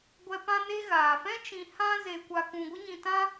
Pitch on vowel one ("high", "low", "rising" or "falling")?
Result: high